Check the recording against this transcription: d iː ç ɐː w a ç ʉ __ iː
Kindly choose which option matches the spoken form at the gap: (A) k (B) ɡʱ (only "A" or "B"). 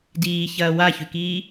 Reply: A